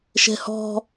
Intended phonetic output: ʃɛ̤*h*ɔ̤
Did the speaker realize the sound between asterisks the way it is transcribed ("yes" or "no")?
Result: yes